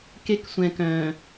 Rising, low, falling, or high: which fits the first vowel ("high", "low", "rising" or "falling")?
high